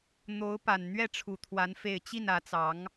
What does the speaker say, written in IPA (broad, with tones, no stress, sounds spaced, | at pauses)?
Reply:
n̪ o˧˥ ʊ̯ p a˨˩ n n̪ ɥ ɛ˥˩ ʈ͡ʂʰ u˨˩ t̪ʰ w a˧˥ n f e˥˧ ɪ̯ t͡ɕ i˥˩ n ä˧˥ t͡s ɑ˧˥ ŋ